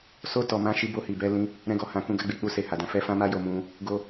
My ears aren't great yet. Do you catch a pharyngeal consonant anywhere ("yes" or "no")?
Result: no